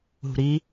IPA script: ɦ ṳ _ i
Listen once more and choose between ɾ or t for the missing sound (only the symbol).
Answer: ɾ